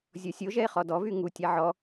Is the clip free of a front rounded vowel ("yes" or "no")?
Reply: no